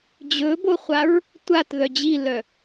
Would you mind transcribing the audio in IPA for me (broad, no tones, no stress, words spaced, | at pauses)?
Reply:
d͡ʑɵboχʷaɹ | tʷatðœ d͡ʑilœ